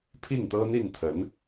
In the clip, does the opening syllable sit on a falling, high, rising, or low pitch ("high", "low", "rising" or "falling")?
falling